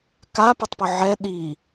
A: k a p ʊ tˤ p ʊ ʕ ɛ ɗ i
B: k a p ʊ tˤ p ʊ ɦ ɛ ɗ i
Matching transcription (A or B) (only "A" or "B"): A